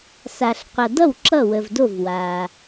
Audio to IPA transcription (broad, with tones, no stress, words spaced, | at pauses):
sa˨ɬqʷʌ˨dʌ˥˩w ǁʌ˥˩wə˨vdo˥˩v wa˨